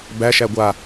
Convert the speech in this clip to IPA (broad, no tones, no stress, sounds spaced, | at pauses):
b æ ʃ æ ɡʷ a